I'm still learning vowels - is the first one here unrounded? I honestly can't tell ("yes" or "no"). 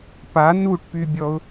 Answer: yes